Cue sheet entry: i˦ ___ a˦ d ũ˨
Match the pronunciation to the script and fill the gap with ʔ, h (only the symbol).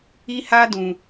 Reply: h